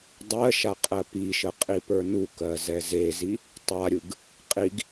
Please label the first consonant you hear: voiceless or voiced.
voiced